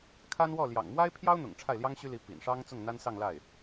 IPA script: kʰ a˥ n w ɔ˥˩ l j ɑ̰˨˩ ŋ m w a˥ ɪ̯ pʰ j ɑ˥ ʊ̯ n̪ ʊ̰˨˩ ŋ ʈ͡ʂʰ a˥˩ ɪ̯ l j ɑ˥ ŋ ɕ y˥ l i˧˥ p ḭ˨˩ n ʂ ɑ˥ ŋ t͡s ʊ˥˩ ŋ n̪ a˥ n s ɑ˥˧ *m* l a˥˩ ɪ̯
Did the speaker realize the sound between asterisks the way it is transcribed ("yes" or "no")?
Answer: no